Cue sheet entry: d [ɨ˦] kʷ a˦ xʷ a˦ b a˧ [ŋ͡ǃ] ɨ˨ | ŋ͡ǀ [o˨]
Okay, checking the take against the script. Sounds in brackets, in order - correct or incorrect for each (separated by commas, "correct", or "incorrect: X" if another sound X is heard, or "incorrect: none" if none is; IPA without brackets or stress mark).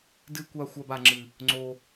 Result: correct, incorrect: ŋ͡ǁ, incorrect: o˧